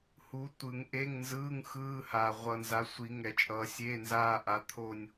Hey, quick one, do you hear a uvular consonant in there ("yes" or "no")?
yes